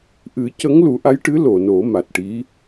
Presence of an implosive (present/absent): absent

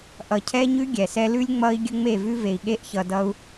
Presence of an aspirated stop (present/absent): present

